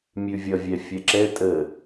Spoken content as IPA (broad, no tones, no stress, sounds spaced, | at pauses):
mʲ ʉ vʲ ʌ vʲ ɛ fʲ ɛ ǁ ɛ tʼ ə